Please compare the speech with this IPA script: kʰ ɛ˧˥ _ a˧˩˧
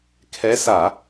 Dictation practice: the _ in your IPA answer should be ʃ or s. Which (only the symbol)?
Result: s